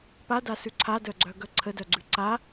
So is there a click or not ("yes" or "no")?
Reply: yes